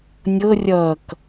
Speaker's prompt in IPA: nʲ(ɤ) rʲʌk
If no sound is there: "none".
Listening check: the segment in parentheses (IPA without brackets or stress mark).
ɤ